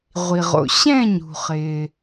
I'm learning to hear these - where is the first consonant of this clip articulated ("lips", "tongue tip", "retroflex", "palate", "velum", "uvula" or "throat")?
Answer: uvula